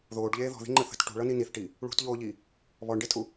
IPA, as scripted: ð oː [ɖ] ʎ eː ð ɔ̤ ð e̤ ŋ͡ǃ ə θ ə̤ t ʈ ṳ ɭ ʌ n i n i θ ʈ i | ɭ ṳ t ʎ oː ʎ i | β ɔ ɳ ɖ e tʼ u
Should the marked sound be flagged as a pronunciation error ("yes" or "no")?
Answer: no